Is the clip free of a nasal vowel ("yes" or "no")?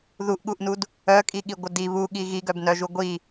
yes